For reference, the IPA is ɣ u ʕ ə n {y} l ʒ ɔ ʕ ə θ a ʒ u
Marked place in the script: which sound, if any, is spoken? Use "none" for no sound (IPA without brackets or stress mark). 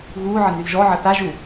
y